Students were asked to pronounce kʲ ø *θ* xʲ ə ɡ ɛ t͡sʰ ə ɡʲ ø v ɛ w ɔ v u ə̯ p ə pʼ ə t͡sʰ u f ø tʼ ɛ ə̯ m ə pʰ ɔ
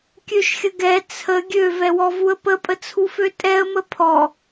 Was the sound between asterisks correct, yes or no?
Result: no